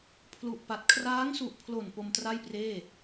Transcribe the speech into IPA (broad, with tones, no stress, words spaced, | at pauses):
pʰlu˨˩ʔpa˨˩t̚ kʰraː˦˥ŋsu˨˩ʔpʰlo˨˩n po˧mtra˥˩jpreː˥˩